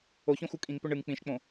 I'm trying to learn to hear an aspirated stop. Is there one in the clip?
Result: no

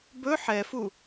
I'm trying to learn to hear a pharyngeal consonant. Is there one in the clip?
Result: yes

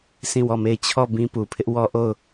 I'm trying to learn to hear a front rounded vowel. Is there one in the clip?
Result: no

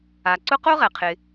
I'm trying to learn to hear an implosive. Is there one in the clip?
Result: no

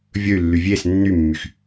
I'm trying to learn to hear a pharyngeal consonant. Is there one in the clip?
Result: no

